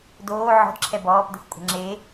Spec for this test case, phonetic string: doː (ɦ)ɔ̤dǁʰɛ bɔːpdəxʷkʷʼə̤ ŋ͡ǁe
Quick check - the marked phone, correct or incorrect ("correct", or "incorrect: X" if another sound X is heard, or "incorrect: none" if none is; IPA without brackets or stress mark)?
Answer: incorrect: ʕ